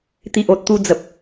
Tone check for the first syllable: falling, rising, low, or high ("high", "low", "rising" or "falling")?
low